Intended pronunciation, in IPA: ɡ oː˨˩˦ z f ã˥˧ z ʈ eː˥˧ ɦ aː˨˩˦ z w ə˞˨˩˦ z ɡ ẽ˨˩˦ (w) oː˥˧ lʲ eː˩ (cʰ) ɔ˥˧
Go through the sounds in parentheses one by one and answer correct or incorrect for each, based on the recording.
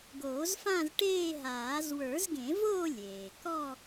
incorrect: v, incorrect: k

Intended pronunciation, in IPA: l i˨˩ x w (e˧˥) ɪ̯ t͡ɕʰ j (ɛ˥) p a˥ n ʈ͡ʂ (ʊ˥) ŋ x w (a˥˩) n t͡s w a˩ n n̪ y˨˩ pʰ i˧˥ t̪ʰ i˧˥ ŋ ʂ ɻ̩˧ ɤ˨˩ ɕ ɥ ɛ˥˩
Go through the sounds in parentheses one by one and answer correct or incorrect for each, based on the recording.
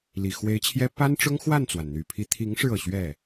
correct, correct, correct, correct

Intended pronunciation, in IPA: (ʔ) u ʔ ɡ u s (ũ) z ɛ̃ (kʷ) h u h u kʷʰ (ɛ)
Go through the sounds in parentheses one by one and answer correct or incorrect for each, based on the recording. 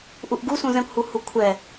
correct, correct, correct, correct

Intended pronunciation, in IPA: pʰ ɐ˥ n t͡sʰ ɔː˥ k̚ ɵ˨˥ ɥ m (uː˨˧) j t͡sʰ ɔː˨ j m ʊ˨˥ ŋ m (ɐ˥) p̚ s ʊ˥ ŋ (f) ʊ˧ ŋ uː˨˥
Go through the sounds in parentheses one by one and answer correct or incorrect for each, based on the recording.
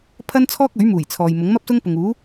incorrect: uː˨˩, correct, incorrect: p

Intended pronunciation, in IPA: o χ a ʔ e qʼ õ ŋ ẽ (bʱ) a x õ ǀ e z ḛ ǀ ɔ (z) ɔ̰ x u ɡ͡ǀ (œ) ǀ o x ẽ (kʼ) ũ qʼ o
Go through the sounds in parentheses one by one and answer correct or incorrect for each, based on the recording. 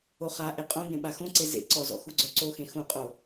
incorrect: ɓ, correct, correct, incorrect: x

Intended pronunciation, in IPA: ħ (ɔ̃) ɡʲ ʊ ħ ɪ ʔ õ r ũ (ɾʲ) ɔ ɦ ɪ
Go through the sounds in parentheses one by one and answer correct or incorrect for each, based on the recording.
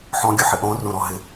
correct, incorrect: ɾ

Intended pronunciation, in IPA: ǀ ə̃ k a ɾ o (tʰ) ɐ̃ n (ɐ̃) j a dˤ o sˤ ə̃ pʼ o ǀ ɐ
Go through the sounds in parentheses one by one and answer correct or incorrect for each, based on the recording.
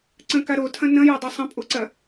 correct, correct

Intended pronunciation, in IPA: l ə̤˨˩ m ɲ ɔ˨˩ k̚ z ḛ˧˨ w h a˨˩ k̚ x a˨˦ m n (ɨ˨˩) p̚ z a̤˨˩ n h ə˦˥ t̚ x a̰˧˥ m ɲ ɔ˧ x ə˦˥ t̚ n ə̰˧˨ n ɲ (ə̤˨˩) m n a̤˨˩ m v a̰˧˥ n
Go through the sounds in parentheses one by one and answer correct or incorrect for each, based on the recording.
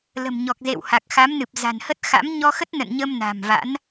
correct, incorrect: ə˧

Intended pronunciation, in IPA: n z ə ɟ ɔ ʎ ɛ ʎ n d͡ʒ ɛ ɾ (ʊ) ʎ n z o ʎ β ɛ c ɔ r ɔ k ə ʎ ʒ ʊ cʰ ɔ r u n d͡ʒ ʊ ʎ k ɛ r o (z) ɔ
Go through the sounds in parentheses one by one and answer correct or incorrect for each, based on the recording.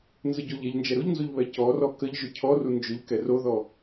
correct, incorrect: ð

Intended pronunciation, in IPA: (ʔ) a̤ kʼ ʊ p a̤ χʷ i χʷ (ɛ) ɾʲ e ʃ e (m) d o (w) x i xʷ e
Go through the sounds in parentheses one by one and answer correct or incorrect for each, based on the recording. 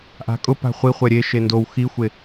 correct, correct, incorrect: n, correct

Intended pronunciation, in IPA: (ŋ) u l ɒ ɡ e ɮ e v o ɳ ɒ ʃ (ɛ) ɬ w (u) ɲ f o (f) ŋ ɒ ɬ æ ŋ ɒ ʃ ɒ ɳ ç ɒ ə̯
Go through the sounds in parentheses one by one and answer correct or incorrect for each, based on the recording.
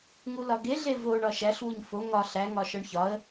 correct, incorrect: æ, correct, incorrect: none

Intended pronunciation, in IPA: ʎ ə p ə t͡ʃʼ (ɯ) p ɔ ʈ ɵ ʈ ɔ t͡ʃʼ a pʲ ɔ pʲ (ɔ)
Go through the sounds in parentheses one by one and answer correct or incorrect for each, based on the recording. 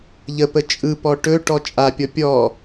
correct, correct

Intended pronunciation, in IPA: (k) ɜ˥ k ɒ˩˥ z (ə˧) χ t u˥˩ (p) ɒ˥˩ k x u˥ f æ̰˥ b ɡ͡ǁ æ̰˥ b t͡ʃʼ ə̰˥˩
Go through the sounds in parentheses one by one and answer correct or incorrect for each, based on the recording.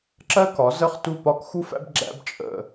incorrect: ǁ, incorrect: ə˥˩, correct

